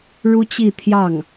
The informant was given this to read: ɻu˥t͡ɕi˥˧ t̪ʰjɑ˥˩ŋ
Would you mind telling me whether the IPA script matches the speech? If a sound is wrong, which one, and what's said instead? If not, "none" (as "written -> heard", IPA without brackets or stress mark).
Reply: none